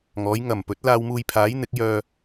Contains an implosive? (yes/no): no